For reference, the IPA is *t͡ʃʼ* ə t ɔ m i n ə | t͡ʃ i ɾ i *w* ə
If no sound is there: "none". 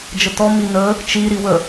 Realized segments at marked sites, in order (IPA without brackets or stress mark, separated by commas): d͡ʒ, w